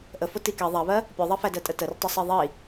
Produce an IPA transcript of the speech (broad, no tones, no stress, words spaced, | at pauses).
ʔəfo tike ðˤɛβɜ | pʲoðˤɛfædɜ tʼətərtˤɨ sˤeðˤi